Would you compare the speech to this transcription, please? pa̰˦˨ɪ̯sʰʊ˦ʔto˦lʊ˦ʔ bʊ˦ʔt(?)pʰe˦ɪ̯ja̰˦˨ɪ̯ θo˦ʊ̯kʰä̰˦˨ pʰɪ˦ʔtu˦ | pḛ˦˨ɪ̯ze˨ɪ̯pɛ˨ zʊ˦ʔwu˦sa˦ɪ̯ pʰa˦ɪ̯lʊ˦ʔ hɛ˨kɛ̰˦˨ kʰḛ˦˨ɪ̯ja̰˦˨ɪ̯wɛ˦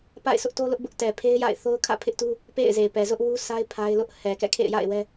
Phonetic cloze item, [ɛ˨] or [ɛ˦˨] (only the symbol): ɛ˨